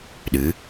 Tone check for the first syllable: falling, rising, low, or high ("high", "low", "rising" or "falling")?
rising